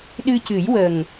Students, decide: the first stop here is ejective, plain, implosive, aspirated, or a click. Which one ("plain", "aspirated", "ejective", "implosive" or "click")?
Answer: implosive